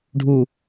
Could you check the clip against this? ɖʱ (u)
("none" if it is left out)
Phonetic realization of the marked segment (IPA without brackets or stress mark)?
u